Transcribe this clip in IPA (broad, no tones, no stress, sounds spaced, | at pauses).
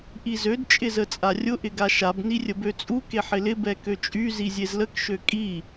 ʔ i z ø d t͡ʃʼ ɪ z ə t͡sʼ a rʲ ʊ ʔ ɪ ɡ a ʃ a b n i rʲ ə b ø t͡sʼ u k e ħ ɪ l ɪ b ɛ k ø t͡ʃʼ y z i zʲ e z l ə k ʃ ø kʼ i